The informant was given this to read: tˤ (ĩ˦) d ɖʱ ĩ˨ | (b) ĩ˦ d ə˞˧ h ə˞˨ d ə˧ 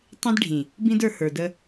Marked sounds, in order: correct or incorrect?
correct, correct

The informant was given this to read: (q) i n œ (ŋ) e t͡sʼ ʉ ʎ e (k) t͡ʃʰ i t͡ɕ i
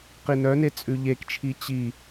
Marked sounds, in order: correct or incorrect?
correct, incorrect: n, correct

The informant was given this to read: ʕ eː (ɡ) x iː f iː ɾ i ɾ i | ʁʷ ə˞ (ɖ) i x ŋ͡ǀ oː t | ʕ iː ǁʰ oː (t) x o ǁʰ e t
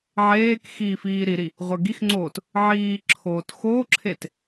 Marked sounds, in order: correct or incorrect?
incorrect: k, incorrect: ɡ, correct

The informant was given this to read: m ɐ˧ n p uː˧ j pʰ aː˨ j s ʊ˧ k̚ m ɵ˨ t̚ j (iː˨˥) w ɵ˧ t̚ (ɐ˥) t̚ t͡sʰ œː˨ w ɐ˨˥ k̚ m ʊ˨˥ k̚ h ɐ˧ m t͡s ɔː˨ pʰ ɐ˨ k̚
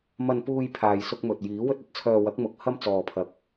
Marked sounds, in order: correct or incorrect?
correct, correct

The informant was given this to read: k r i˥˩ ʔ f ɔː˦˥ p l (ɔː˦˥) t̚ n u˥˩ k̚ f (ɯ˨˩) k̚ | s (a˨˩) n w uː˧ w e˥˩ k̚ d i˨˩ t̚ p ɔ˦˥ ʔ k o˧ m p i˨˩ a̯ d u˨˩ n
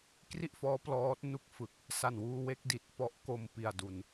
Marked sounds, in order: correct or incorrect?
correct, correct, correct

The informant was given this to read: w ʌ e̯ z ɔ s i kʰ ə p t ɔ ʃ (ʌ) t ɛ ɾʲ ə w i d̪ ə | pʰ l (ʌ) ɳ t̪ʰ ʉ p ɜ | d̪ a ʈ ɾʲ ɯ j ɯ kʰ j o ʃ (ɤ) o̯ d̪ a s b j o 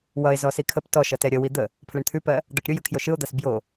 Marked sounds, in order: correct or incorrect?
correct, incorrect: ə, incorrect: ɯ

